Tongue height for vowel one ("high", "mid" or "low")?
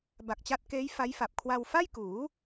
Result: low